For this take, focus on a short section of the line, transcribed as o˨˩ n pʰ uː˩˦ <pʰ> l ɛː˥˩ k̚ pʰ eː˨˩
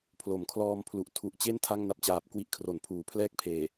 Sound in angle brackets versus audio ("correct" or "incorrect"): correct